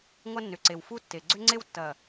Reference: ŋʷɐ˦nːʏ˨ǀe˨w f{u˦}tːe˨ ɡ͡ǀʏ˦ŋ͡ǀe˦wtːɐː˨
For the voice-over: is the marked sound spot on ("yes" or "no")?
yes